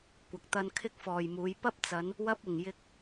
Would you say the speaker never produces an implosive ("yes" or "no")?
yes